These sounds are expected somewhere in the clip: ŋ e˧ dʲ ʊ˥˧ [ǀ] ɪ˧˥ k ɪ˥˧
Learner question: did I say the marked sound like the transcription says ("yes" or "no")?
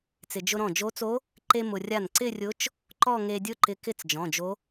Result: no